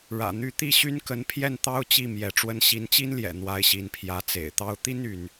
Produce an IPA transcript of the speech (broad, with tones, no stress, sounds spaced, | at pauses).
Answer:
ɻ ä̰˨˩ n̪ y˥˧ t̪ i˥˩ ɕ y˥ n k ə˧˥ n pʰ j ɛ˥˩ n t̪ ɑ˥ ʊ̯ t͡ɕ i˥˩ m j ɛ˧˥ ʈ͡ʂ w ə˥ n ɕ i˧˥ n t͡ɕ i˥ n l j ɛ̰˨˩ n̪ w a˧˥ ɪ̯ ɕ i˧˥ n pʰ j ä˧˥ t͡s ḛ˨˩ ɪ̯ t̪ ɑ˥ ʊ̯ t̪ i˥ n y˧˥ n